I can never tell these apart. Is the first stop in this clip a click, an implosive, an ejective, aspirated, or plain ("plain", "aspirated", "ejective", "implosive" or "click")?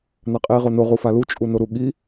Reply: ejective